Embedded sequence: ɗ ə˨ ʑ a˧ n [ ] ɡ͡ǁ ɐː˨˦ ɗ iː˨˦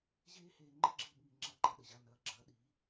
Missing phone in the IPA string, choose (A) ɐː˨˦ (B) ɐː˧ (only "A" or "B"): A